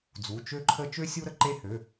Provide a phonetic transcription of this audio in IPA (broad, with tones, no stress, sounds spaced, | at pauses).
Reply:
d͡z u˩˧˩ t͡ʃ ø˦ ǃʰ ə˦ t͡ʃ ø˦ sʲ u˦ ɾ ə˦ ǃ e˦ h ø˩˧˩